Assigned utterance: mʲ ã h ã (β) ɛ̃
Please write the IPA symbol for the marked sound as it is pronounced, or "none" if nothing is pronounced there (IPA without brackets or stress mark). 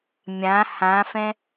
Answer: f